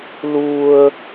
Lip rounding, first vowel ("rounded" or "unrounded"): rounded